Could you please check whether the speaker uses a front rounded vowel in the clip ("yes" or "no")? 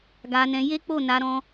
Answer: no